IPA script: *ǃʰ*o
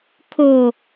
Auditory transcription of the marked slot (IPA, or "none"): kʰ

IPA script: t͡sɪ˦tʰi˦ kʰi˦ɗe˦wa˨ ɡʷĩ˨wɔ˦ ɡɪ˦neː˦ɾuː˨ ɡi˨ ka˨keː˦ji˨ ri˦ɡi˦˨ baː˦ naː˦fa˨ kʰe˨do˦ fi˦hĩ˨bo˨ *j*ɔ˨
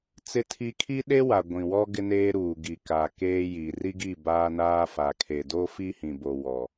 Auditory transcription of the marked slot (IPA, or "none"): w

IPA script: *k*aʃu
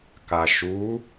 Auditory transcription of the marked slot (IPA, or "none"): k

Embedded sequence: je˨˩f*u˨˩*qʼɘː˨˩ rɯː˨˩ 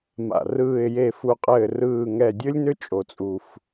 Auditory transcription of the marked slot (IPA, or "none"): u˨˩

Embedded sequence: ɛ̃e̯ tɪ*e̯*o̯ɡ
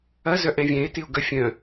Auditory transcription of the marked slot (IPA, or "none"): none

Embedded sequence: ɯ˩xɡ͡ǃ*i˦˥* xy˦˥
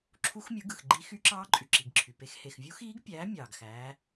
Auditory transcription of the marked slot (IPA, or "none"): i˦˥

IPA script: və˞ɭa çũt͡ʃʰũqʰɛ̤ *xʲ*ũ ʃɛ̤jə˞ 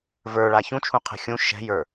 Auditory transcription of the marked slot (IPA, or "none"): xʲ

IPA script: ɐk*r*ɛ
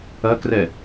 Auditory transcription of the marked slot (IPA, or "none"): r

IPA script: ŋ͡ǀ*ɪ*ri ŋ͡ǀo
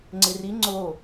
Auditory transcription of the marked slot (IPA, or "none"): ɪ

